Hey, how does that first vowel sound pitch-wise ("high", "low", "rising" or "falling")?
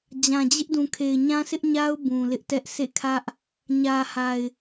low